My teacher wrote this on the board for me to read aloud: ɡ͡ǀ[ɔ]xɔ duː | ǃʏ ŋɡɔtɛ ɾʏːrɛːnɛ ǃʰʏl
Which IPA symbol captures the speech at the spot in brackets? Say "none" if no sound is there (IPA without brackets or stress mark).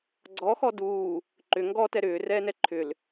ɔ